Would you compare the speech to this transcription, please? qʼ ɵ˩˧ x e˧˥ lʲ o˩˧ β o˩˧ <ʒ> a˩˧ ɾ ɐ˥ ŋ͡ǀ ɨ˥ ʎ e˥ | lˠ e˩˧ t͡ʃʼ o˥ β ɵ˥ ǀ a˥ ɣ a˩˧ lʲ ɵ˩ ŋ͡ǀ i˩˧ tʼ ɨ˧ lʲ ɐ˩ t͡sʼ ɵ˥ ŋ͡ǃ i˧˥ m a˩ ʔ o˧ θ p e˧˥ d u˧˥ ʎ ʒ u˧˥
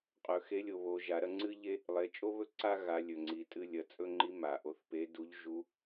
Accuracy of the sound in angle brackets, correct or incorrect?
correct